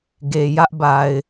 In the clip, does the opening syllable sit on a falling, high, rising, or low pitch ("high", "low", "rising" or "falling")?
low